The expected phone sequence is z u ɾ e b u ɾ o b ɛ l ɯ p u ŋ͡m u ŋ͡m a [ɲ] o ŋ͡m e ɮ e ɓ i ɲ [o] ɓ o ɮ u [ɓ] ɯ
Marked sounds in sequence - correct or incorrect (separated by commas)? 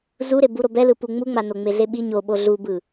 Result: incorrect, correct, incorrect